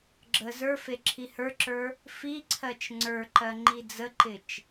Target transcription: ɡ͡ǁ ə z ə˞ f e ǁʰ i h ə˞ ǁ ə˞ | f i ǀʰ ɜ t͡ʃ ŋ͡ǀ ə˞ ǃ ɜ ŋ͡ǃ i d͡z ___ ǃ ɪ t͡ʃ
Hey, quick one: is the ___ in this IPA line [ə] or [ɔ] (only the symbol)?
ə